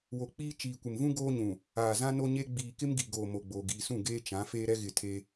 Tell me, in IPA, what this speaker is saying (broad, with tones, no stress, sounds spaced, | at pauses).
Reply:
w o˨ k͡p iː˦ t͡ʃ iː˨ kʷ ɪ˨ m v ũ˦ ɡ oː˦ ɲ ũ˨ | aː˨ z ã˦ n o˦ ɲ e˦ ɡ͡b iː˨ k ɪ˦ m ɡ i˨ ɡ oː˨ m o˨ ɡ͡b oː˨ ɡ iː˨ s ũ˦˨ ɡ eː˦ t͡ʃ ã˨˦ f eː˦ ɾ ɛ˦ ɣ ɪ˦˨ tʰ e˦